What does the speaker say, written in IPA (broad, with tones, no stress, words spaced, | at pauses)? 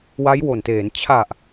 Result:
wa˦˥jwo˨˩nteː˩˦n t͡ɕʰa˨˩ʔ